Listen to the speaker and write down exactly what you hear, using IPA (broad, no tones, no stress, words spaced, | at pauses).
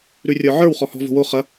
ɾʉrʲə˞ʕə˞w χɔhɔ̤ vo̤wo χɐ